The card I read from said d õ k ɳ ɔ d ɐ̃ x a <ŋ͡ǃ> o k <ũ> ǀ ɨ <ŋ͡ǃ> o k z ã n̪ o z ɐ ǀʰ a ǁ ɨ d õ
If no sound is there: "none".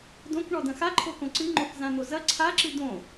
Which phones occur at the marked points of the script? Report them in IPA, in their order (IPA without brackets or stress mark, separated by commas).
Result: ǃʰ, õ, ŋ͡ǃ